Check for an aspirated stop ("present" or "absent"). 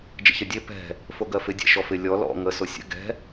absent